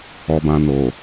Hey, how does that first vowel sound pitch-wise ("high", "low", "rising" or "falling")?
low